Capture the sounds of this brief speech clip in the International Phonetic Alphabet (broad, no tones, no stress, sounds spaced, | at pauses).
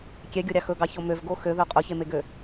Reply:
kʲ ɛ ɡʲ o ɾʲ ɑ x ɵ ɡ ɑ ç o m ø v ɡ o x ø ð ø qʼ ɵ ç e m e ɡ ø